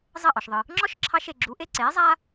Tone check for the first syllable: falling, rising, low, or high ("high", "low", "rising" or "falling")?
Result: falling